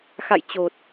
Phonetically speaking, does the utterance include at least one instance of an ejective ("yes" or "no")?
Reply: no